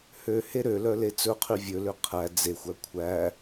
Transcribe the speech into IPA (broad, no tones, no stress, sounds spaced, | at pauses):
h ø h e ɾ ø l œ l e t͡s ɵ qʰ y vʲ ɵ l ø qʰ æ d͡z e xʷ æ kʷʰ æ